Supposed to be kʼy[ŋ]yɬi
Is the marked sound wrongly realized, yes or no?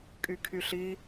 yes